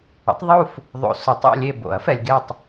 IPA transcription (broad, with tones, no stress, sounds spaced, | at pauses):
ə̰˩˥ tˤ ðˤ u˦˨ f | ðˤ o̰˨ s ʊ˨ tˤ ḛ˦˨ lʲ e˦˨ b o̰˨˩˦ ɐ̯ f ɛ˨ lʲ ɡ e˦˨ tˤ